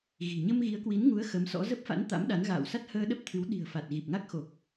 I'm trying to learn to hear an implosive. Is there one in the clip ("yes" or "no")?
yes